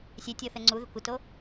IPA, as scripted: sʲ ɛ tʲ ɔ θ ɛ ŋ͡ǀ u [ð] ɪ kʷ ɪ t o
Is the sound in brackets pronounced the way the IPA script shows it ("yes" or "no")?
yes